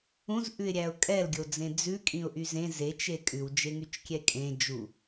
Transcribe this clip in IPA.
ũ z ʔ ʉ ɪ̯ ɾʲ æ ʊ̯ kʼ ɛ l ɡʲ o d͡z ẽ d͡z ʉ kʼ ĩ ʊ̯ ʔ y z ẽ z e t͡ʃ e kʼ ʉ w d͡ʒ e ŋ y t͡ʃ kʲ ɛ kʼ ẽ d͡ʒ u

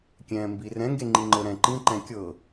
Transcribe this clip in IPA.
kʲ ɛ̃ː m b i r ɛ̃ ŋ ɡ e ŋ͡ǃ i ŋ͡ǃ ɤ ɾ ɛ̃ ǃ ĩ ǃ ɛ̃ kʲ ɤ

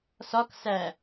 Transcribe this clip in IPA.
s ɒ k s æ

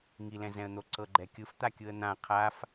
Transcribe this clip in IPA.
ŋ i l ɛ̃ z ɛ̃ ə̯ n̪ o ǀ ɤ ɡ͡ǃ ɛ kʲ ɯ f t̪ a kʲ ɯ ə̯ n̪ ã qʰ a f

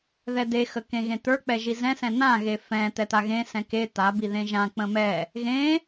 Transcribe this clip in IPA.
ð ɛ d e x ə k ẽ ɣ ẽ t̪ ə˞ k͡p ɛ ʒ i z ɛ̃ s ɛ̃ n̪ ã ɣ e f ɛ̃ t̪ ɛ t̪ a ɣ ẽ s ɛ̃ k e t̪ a b i ð ẽ ʒ ã k͡p ə̃ m ɛ | ɣ ẽ

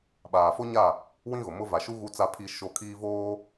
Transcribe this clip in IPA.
ɓ aː˨ f o˦ ɲ a˦˨ | w ĩ˦ ɣ ʊ˨ m ʊ˦ v a˨ ʃ u˦ ɣ u˦ t͡s a˦ pʰ i˦ ʃ o˦˨ kʰ iː˦ v oː˦

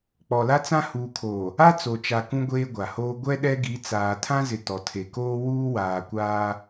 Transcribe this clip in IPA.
k͡p ɔ˨ l a˦ t͡s ã˦ h uː˨ kʰ oː˨ | a˦ t͡s o˨ t͡ʃ a˨ k ũ˦ ɡʷ eː˦ ɡʷ a˨ h oː˦ ɡʷ ɛ˦ ɗ ɛ˦ ɡ i˨˦ t͡s aː˨ tʰ ã˦ z ɪ˨ t ɔ˨ tʰ e˨ k oː˦ w uː˦ w aː˨ kʷ aː˦

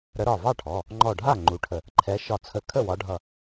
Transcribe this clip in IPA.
ɾ ə˨˦ ɾ ɒ˧˩ v ɑ˥˩ ʈʰ ɔ˩˧˩ | ŋ͡ǃ ɔ˧˩ ɖʱ a˥˩ ŋ͡ǃ u˨˦ ʈʰ ə˧˩ | ǃʰ ɛ˨˦ ʃ ɒ˧˩ t͡sʰ ə˧˩ kʰ ə˥˩ w ɒ˨˦ ɖʱ ʌ˧˩

